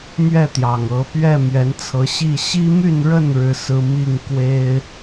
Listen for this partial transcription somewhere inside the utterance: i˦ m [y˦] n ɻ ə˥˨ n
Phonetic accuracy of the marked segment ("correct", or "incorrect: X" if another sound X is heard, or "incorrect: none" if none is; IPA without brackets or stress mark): incorrect: y˥˨